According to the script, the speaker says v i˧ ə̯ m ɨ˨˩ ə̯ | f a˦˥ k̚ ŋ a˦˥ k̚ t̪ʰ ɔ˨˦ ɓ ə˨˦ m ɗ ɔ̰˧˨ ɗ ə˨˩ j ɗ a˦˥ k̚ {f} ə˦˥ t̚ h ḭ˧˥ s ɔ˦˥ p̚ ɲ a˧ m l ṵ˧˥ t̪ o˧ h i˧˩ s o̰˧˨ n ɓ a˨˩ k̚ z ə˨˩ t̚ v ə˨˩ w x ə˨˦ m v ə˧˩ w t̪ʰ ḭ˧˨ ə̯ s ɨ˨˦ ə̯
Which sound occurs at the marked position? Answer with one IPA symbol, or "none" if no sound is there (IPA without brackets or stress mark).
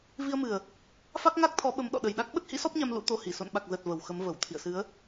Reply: ɓ